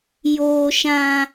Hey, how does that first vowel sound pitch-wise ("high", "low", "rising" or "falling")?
high